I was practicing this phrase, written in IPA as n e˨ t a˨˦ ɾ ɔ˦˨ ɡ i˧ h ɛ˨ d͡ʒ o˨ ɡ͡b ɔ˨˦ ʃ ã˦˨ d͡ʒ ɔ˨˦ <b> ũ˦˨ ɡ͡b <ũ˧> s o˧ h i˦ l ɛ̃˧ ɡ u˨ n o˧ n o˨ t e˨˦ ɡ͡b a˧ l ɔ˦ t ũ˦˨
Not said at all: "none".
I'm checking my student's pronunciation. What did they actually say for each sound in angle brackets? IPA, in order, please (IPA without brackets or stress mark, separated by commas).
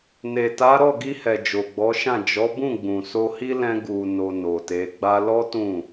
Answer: b, ũ˨